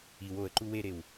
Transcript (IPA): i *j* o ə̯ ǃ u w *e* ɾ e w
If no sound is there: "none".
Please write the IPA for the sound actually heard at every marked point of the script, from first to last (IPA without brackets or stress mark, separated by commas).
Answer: w, e